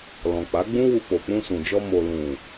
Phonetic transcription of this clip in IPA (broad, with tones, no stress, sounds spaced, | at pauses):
l ɔ̃˨ k͡p a˨˦ ɡ͡b ũ˦ w u˧ k͡p o˨ k͡p ũ˧ s ũ˨ d͡ʒ ɔ˧ m o˨ l ũ˨